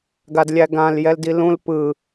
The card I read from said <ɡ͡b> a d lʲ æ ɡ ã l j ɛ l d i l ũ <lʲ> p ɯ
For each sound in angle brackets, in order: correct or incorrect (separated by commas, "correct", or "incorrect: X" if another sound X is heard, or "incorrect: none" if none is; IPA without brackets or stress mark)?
incorrect: ɡ, incorrect: l